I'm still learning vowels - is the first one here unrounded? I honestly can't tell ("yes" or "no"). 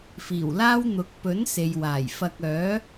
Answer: yes